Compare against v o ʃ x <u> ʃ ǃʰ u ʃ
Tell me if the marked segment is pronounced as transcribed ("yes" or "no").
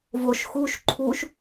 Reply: yes